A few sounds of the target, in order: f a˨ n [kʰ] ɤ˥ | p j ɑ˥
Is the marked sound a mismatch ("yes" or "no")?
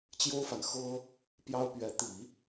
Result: yes